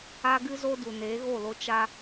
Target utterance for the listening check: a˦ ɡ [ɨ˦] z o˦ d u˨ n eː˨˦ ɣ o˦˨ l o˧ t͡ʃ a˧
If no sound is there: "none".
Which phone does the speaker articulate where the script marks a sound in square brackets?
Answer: ɨ˦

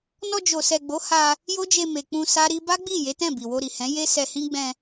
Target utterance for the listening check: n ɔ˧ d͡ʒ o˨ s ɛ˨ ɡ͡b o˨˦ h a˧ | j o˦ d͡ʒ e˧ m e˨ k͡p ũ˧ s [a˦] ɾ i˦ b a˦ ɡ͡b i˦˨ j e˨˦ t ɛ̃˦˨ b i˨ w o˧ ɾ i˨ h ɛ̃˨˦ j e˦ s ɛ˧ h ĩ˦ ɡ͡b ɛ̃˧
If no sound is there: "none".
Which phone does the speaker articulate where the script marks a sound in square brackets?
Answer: a˦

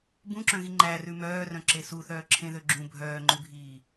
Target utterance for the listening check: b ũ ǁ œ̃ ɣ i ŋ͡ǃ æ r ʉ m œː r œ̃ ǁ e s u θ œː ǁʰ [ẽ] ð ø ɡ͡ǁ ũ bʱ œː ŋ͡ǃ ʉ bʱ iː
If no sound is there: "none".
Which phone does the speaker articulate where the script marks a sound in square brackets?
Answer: ẽ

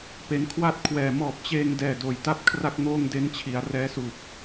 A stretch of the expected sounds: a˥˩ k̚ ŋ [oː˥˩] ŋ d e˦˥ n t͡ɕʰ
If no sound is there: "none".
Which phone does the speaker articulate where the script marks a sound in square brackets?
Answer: oː˥˩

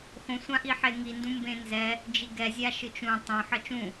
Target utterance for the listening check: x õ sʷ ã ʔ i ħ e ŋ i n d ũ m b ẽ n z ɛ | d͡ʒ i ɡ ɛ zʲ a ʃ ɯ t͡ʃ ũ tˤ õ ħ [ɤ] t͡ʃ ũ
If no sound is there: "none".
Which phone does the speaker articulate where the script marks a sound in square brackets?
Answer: ɤ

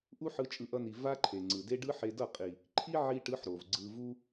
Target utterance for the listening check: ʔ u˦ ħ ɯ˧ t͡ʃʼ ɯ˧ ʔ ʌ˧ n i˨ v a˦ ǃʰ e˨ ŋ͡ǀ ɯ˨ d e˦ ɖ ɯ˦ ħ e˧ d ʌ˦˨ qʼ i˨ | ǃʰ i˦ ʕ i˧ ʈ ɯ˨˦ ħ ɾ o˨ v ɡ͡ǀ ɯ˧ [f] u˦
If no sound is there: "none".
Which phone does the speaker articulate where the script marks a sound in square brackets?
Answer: v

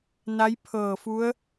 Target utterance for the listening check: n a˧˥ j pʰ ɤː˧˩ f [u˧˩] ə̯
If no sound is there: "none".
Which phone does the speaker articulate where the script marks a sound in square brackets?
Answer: u˧˥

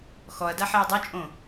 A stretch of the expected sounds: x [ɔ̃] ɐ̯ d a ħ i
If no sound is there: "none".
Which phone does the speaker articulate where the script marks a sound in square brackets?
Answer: ɔ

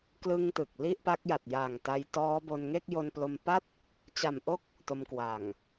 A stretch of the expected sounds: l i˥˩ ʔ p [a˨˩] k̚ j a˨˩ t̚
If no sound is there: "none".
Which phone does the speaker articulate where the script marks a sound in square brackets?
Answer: a˦˥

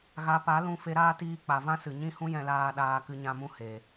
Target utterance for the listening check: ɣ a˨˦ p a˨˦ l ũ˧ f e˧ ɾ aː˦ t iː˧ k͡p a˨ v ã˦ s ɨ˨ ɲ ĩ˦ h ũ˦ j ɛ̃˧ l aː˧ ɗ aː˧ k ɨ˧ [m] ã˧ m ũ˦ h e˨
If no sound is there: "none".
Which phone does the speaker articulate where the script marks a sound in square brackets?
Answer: ɲ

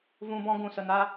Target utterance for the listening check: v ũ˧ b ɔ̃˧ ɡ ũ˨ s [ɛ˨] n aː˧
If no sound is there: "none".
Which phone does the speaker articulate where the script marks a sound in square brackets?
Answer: ə˨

